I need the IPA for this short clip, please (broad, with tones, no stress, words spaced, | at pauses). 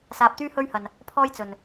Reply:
saː˧p̚t̪yː˥hɵ˥ɥhɐ˧n | pʰɔː˥jt͡sɵ˧n